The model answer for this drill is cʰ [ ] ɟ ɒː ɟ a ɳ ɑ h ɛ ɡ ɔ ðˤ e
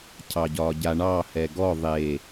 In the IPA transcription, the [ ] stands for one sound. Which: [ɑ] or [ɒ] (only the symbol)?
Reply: ɑ